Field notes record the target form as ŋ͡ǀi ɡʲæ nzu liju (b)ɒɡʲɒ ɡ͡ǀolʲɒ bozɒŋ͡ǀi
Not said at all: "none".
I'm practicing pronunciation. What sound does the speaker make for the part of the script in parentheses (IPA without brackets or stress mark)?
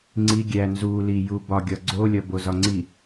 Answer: b